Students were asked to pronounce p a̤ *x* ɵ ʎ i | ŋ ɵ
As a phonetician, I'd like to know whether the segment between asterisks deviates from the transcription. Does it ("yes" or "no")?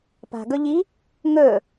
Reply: yes